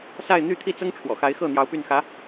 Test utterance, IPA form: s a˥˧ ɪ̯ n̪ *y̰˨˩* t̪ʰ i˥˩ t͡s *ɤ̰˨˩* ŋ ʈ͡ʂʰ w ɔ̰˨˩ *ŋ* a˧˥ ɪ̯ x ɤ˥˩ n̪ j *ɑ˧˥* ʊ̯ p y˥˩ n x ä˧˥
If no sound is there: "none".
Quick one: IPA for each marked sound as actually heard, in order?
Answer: y˥˧, ɤ˥, x, ɑ˧˥

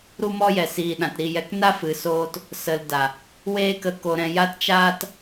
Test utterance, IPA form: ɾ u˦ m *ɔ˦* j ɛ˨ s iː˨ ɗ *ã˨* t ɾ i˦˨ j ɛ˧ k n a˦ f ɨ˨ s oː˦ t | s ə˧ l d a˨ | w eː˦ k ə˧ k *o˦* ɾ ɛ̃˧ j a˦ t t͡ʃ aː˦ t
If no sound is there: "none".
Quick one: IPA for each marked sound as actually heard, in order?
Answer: ɔ˦, ã˨, o˧

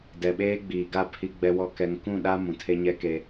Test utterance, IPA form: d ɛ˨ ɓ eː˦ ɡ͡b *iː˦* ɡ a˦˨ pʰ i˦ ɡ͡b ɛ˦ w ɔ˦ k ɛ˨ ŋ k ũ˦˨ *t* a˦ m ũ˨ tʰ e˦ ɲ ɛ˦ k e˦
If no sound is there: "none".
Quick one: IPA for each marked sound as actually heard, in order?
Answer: iː˨, ɗ

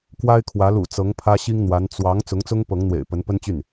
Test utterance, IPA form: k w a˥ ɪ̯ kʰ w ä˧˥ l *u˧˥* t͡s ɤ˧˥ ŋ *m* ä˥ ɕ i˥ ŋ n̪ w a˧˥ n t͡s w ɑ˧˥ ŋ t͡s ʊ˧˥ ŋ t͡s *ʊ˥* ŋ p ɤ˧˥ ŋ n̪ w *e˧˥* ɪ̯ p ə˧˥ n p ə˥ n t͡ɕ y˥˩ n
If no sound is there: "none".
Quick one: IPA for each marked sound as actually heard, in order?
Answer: ṵ˨˩, pʰ, ʊ˥, ḛ˨˩

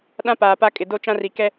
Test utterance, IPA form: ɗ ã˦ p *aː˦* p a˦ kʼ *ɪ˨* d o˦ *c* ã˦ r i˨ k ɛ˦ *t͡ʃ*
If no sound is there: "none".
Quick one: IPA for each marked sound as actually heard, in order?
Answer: aː˨, ɪ˨, t͡ʃ, none

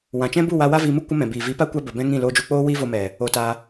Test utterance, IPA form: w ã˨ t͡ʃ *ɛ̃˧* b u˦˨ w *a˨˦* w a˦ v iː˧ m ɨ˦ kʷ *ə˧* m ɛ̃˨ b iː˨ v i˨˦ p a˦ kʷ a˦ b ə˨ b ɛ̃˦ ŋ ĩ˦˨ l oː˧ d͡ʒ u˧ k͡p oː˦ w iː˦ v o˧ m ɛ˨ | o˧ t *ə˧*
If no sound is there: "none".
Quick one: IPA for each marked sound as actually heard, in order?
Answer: ɛ̃˦, a˧, ə˦, a˧

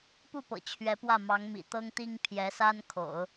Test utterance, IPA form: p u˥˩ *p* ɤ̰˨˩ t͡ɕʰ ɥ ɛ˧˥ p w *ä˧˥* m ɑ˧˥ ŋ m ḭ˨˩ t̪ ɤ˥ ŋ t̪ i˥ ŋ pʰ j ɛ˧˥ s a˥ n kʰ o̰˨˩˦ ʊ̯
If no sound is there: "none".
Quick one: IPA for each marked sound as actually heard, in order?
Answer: p, ä˥˩

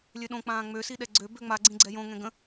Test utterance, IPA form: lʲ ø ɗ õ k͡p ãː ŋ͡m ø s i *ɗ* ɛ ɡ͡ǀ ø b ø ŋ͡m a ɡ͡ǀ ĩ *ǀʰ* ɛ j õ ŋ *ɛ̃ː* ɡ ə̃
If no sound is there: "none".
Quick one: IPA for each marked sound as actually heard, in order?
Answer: ɗ, ɡ͡ǀ, ɛ̃

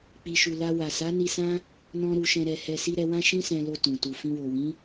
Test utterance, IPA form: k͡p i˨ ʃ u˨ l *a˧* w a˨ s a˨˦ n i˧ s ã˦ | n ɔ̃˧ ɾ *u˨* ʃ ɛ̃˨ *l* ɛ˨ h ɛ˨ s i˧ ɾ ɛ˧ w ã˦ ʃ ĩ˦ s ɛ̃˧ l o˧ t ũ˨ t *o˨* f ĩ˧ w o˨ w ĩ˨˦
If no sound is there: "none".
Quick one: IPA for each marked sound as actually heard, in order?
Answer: a˧, u˨, ɾ, u˨

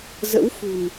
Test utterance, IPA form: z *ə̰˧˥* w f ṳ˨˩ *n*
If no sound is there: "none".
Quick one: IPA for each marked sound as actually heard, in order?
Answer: ə̰˧˥, n

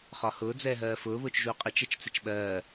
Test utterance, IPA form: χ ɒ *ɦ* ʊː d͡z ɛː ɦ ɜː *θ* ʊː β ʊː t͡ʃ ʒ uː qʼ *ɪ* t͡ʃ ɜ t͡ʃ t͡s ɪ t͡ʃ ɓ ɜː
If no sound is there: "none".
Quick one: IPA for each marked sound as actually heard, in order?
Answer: h, f, ɪ

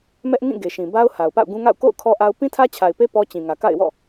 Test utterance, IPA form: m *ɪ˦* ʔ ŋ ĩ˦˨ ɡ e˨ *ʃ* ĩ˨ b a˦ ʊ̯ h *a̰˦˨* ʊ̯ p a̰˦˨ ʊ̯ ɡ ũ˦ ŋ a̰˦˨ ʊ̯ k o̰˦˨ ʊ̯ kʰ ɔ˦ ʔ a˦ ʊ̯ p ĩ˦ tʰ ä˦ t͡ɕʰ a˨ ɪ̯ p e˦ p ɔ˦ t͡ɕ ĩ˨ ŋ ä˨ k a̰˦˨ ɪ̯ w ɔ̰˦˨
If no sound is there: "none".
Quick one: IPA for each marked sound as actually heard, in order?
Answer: ɛ˦, ʃ, a˨

